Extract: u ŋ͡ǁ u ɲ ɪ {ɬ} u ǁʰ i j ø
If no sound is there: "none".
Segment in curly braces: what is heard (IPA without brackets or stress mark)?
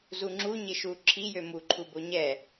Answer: ʃ